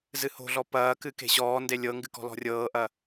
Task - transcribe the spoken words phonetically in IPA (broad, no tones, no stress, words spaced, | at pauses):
zɨho̤ɮɔ pɐːkɨ ke̤ɕɔːnde lʲɤŋɡɨ kɔ̤lɔ̤rʲɤːʔɐ